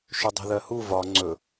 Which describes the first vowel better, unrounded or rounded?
rounded